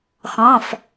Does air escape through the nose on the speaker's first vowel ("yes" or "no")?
yes